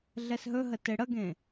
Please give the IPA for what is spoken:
ɮ ɛ s ɦ ɵ ɦ ə t e ɽ ə ɡ ẽ

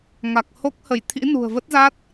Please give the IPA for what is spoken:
ŋ a˨˩ k̚ h o˦˥ k̚ h ə˧˩ j t̪ʰ ḭ˧˥ n ṳ˨˩ ə̯ v ə˦˥ t̚ z a˦˥ t̚

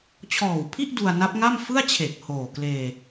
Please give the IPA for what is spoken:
t͡ɕʰ ɔː˨˩ w pʰ i˥˩ ʔ d u˧ a̯ n a˦˥ p̚ ŋ a˥˩ m f ɯ˥˩ a̯ t͡ɕʰ e˨˩ k̚ h oː˨˩ k l eː˧

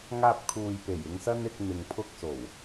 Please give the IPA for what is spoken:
ŋ aː˧ p̚ kʰ uː˨ j p e˨˩ j ɪ˧ ŋ s ɐ˥ n ɪ˧ k̚ n̪ ɪ˨ ŋ pʰ ʊ˧ k̚ s o˨˩ w

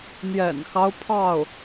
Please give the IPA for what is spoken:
n̪ j ɛ̰˨˩ n x ɑ˦ ʊ̯ pʰ ɑ˥˩ ʊ̯

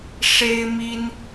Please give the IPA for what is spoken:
ʂ e˥ ɪ̯ m i˥ n

